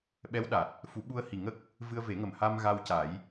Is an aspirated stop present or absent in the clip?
absent